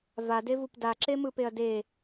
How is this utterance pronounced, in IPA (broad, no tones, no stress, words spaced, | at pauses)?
vadevup daǁemɯpeɐ̯ de